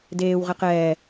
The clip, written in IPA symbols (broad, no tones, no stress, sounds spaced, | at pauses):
d eː w ʁ ɛ q ɛː